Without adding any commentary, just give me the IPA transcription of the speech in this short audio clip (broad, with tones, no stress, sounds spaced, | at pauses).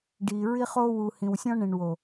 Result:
ɖ i˨ ɹ i˧ χ o˧ w u˨ h ĩ˨ w sʲ ɔ̃˧ ɳ ẽ˨ ɳ w o˨